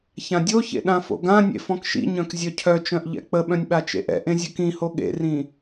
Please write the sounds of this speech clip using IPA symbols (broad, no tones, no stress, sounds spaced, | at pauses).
ç ã dʲ o ç ḛ ɗ ã f o̰ ɡ ã nʲ ḛ f ɔ̃ k ʃ ḭ ɲ œ̃ k zʲ œ cʰ œ t͡ʃ œ̃ ʔ ʎ ɛ̰ k͡p ə ɓ œ̃ nʲ ɓ a t͡ʃ ḛ ʔ ɛ̰ ʔ ẽ zʲ œ k ĩ h o ɠ ḛ r ĩ